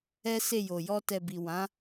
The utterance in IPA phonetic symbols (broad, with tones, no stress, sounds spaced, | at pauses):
ɛ˦ s e˦˨ j o˨ j ɔ˧ t ɛ˨ b i˨ w ã˨˦